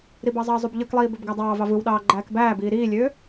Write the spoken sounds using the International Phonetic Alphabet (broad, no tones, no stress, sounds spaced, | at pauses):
ɾ i b ɑ zˤ ɑ zˤ u b ʎ ɯ k lˠ iː b ø b ɡ æ dˤ ɑː v ɑ v ɯ w ɗ ɑː ɡ͡ǃ æː k b æː b iː ɾ iː lʲ øː